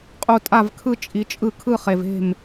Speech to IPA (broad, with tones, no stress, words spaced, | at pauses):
qʼu˨˩ tʼa˥˩vkʰɯ˥˧ t͡ʃʼi˩˧t͡ʃʼɯ˥˩kʰɯ˥˧χe˨˩v e̤˥˩m